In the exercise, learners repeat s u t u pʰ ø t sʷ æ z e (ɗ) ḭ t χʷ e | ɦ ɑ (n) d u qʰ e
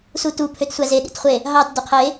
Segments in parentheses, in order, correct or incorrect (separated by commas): correct, incorrect